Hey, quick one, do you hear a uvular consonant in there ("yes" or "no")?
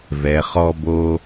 yes